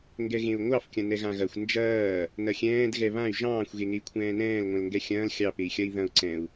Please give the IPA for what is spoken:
ŋ ɡ ɛ ɣ ẽ u̯ ŋʷ ɑ f kʲ ɐ̃ n ɛ ɣ ã ɣ ɐ xʷ n d͡ʒ ɐː | n ɐ xʲ ɛ̃ː d ɣ ɛ β ã y̯ ʒ ɑ̃ː xʷ ɣ e ŋ e i̯ kʷʰ ɛ̃ː n ɛ̃ː l ŋʷ ɛ̃ l ŋ ɡ ɛ xʲ ɐ̃ː l xʲ ɑ p e i̯ xʲ ɐ i̯ ð ɐ̃ u̯ ǀ ɛ̃ u̯

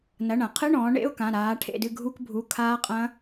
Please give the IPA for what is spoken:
n ɐ˩˧˩ ɳ ɐ̃˧˩˧ qʰ ɨ˧˥˧ ɳ ɔ̃ː˩˧ ɳ ḛ˧˥˧ ʊ̯ k ã˩˧˩ ɾ aː˩˧ ʈʰ ḛ˦˨ d ɨ˦˨ ɡʱ u˧˥˧ k bʱ u˩˧˩ kʰ aː˦˥ qʼ ɐ̃˦˥

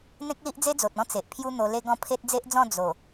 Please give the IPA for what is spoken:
n̪ ẽ˦ k̚ l i˦ ʔ d͡z e˦ d͡z o˨ t̚ ɔ̃˦ t͡s e˨ ʔ pʰ j u˦ n̪ o˧ l e˦ ɡ ɔ̃˥˧ pʰ e˦ t̚ d͡z e˦ ʔ d͡z ɔ̃˥˧ d͡z o˨˩

